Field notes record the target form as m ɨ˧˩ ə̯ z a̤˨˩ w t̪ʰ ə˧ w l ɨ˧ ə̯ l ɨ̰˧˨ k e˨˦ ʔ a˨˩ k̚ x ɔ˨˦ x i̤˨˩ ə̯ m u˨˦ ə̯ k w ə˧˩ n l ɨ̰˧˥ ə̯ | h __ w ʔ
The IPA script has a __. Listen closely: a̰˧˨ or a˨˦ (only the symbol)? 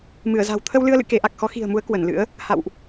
a̰˧˨